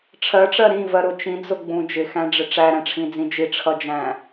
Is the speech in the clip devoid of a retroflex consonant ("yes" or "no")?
no